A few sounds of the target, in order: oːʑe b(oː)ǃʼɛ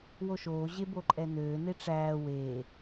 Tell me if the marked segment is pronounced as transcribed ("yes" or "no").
no